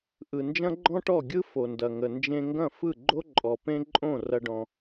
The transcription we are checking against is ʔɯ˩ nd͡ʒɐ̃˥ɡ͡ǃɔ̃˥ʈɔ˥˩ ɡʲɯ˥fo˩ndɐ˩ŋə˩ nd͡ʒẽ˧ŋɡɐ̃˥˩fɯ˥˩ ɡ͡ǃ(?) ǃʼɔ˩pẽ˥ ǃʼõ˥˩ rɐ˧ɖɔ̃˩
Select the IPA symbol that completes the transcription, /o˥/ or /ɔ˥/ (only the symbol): o˥